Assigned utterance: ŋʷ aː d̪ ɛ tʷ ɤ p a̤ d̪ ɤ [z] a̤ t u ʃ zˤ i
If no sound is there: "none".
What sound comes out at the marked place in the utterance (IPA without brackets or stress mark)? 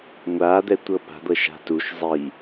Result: ʃ